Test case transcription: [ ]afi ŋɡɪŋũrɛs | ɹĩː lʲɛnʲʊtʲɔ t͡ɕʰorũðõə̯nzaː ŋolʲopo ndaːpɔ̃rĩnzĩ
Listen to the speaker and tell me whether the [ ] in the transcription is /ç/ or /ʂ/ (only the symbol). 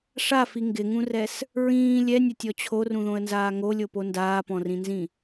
ʂ